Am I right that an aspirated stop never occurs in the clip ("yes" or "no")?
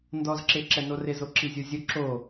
yes